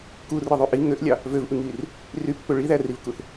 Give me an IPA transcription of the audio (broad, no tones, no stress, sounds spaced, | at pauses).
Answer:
k u r ɯ ðˤ y ʔ i ŋ ø ʔ lʲ ɑ | v ø v ʔ ɯ ŋ iː r | r y pː ø ɭ i ð æ r i v k u θ